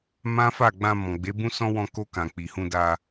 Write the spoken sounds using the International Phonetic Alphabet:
mã˦ fa˦˨ɡ͡bã˧ mɔ̃˨ ɡ͡be˨˦bũ˦sɔ̃˦ wɔ̃˧ko˧kã˨ k͡pi˨hũ˧da˧

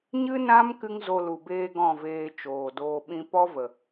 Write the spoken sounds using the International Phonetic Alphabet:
ɲɨ˦nã˦m kɨ˦ŋzo˧lu˨ beː˦ɡɔ̃˦˨veː˧ t͡ʃoː˨doː˧ɓĩ˦ pɔ˦və˨

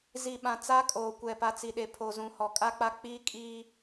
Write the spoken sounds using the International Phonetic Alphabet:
zi˨ɓã˨ t͡sa˦kʼoː˨kʷɛ˨ pa˨t͡si˨ɗe˨ pʰo˨ zũ˨hɔ˨kʼa˦k͡pa˦ k͡piː˦ kʼiː˦

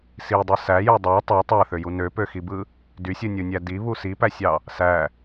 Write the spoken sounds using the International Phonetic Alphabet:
sidˤɯ sæjo dˤæ tˤæ tˤæθøju nøpøxibɯ | dysʲɯnʲunʲæ diβu sipæsʲɑ | sæ

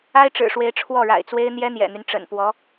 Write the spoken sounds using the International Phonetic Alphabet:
a˥ɪ̯ʈ͡ʂɻ̩˨˩ʂwe˧˥ɪ̯ ʈ͡ʂʰwɔ˥˩ɻa̰˨˩ɪ̯t͡swe˥ɪ̯ n̪jɛ˥n̪jɛ̰˨˩n̪y˦n ʈ͡ʂə̰˨˩npwɔ˧˥

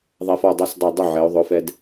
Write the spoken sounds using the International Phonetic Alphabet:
ðˤɛ˧fɔ˧˩dˤɛ˥˨sdˤɛ˧˩ dˤʊ˥˨ʕɛ˩˧o̯ ðˤʊ˩˧˩fɛ˧d

